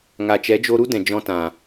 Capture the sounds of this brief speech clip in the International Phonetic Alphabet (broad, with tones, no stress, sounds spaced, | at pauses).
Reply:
ŋ a˨ t͡ʃ ɛ˨˦ d͡ʒ o˧ ɾ u˦ d ɛ̃˨ d͡ʒ ɔ̃˧ t ã˨